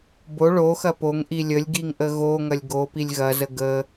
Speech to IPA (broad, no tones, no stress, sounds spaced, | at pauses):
b o ɭ o x ɐ p o ŋ ʔ i lʲ ə lʲ ɡ i ŋ ʔ ə ɣ o ŋ ɐ lʲ ɡ o p i lʲ ɣ ɐ z ə ɡ ə